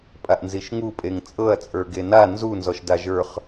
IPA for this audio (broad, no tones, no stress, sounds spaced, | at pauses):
pʼ a ʔ n z i ʃ ŋ u pʼ e ŋ t͡sʼ ɤ ɐ̯ t͡sʼ ə˞ ɡ e n a n z u n z ɔ ʃ d a ʒ ə˞ χ